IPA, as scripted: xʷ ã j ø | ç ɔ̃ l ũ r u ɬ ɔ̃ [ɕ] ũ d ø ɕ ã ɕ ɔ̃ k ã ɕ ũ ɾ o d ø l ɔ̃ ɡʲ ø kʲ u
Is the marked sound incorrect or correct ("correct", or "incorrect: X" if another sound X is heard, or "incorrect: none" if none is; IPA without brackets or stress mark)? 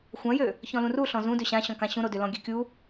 incorrect: z